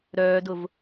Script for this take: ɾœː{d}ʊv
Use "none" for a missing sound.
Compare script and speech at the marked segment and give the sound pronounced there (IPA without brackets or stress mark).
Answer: d